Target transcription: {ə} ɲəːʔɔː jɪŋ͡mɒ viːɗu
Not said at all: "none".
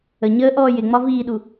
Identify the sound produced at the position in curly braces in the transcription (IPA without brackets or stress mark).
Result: ə